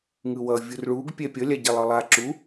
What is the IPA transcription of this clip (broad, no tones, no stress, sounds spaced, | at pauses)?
ŋ ɯ w ʌ vʲ u r ɭ u ɡ pʲ ɛ pʲ ʌ lʲ a ɟ ɛ lˠ ɯ lˠ a ǁ u